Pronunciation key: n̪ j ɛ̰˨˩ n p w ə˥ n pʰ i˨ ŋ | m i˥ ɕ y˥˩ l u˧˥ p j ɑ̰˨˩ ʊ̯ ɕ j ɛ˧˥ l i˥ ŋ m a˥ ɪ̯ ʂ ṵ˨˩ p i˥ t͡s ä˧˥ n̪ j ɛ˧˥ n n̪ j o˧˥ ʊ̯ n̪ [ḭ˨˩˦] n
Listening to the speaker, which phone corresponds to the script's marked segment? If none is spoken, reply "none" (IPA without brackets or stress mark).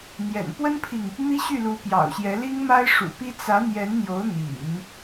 ḭ˨˩˦